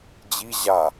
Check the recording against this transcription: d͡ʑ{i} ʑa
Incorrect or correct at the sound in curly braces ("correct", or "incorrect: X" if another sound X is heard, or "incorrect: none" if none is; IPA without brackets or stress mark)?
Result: correct